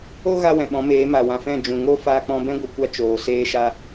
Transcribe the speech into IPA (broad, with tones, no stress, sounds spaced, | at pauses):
o˦ ɣ a˧ w ɛ̃˨ ɓ ɔ̃˨˦ m eː˨˦ m a˨ w ã˨ f ɛ̃˦˨ d͡ʒ ũ˨ ŋ o˦ f aː˧ k͡p ɔ̃˧ b ɛ̃˦ ɡʷ ə˨˦ kʷ a˧ t͡ʃ oː˨ s eː˧ ʃ a˦